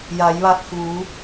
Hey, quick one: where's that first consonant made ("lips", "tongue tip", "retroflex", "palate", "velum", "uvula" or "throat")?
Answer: palate